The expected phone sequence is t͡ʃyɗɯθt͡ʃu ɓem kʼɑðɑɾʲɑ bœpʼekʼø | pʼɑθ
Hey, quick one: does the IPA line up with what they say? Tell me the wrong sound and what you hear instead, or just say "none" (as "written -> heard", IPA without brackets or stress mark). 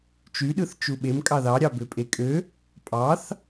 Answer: œ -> ø